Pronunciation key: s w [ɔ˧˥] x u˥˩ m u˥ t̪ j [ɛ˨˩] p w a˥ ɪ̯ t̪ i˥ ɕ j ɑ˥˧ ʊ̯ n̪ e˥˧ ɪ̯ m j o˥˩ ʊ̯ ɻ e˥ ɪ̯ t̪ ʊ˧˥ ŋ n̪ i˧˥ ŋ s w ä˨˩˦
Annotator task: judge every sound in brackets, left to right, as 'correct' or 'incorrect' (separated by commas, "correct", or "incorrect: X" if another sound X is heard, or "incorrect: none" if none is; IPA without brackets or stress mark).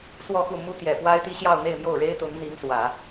incorrect: ɔ˥˧, correct